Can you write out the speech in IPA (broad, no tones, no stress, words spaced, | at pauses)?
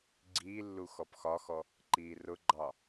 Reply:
ɡ͡ǀiːlːu xɔpxɒxɔ | ǃiːrʊɡ͡ǃɑ